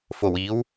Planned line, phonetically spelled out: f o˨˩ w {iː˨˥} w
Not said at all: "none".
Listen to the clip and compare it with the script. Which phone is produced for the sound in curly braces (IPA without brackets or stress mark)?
iː˨˥